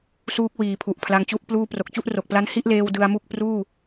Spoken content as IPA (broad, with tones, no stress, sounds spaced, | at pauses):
s uː˦˥ k̚ w iː˩˦ pʰ u˨˩ ʔ pʰ l a˧ ŋ t͡ɕ u˥˩ ʔ p l uː˥˩ p r o˨˩ k̚ t͡ɕ u˥˩ ʔ r o˨˩ k̚ p l a˦˥ n h i˥˩ ʔ l eː˧ w d ɯ˧ a̯ m u˥˩ k̚ p r uː˥˩